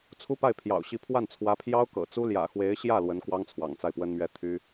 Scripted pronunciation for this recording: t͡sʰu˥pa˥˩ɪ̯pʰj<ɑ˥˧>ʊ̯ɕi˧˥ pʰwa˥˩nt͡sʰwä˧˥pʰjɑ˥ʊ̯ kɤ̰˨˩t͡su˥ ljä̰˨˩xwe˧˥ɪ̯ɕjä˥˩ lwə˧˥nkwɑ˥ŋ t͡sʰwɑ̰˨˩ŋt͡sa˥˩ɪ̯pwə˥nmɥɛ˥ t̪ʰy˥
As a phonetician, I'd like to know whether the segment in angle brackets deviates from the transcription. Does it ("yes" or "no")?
yes